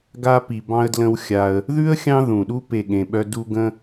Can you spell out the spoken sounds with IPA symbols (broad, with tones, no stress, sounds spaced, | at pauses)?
ɡ a˧ p i˨ b ɑ̃˧ ə̯ d l ə̃˧ w xʲ a˧ ə̯ | ð ʉ˦ ə̯ xʲ ɑ̃˦ ð ũ˨ ɗ u˦ p e˦˨ ɠ ẽ˧ ɓ œ˦ d u˦ ɡ ə̃˦